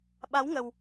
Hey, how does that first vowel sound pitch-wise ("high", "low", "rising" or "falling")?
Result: rising